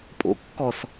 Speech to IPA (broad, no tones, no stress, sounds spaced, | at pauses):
pʼ o̰ kː ɔ s